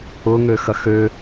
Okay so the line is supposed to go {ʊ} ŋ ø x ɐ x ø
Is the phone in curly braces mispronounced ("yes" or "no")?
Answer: no